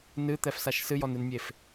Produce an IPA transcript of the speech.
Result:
n ɨ t̪ ɛ f s a ʃ s ɨ j ɔ n ɨ n mʲ e f

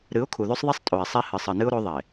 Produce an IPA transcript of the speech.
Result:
ɾ ɨ˨˦ ʊ̯ kʰ u˨ ð ʉ˦ sˤ ðˤ e˦ sˤ tʼ o˨ ɪ̯ sˤ i˦ h ɨ˨ sˤ ɨ˨ n ɨ˦ ʊ̯ ɾ o˦ ðˤ e˨

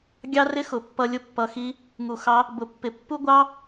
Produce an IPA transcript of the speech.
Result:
ɡʲ ɑ˦ r ɪ˦ x ʊ˨ pː ʌ˧ lʲ ʊ˧ pː ʌ˨ x i˧ | ŋ u˨ x ɑ˧ | b ʊ˨ pː ɪ˨ pː u˦ ɡʷ ɑ˦

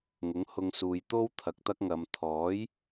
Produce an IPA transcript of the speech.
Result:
ŋ ʊ˨˥ ŋ h ʊ˧ ŋ s uː˨ j t̪ o˥ w t̪ʰ ɐ˨ k̚ t̪ ɐ˥ k̚ ŋ ɐ˨˧ m t̪ʰ ɔː˨˥ j

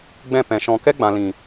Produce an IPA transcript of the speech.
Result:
ɡ͡b ɛ̃˦˨ p ɛ̃˨ ʃ ɔ̃˨ k ɛ˦ ɡ͡b ã˨ l ĩ˨

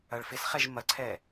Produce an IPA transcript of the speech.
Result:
ɐ ɭ f ɪ s χ ɛ ʒ m ɐ ǀʰ ɛ

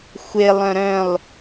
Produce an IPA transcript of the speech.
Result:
xʷ e lˠ œ̃ ɾ œ̃ lˠ

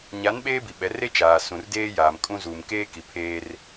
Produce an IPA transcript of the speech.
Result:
ɲ a˨˦ n ɓ eː˦ b i˨ ɓ ɛ˨˦ r e˦ t͡ʃ aː˨ s ũ˨ r d eː˦ j aː˨ m kʼ ũ˦ z uː˨ m k eː˦ k i˨ pʰ eː˦ r

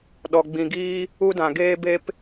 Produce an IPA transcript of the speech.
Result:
ɗ ɔ˨ ɡ͡b ĩ˨ ɡ iː˦ | u˦ d ã˨ ɡ eː˧ b e˧ p

